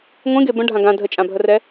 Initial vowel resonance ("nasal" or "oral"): nasal